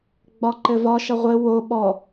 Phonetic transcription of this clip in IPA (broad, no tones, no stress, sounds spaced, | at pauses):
ɡ͡b ɒ ǃ ɘ v ɒ ʃ ʌ ʁʷ ɘ w o ɓ ɔ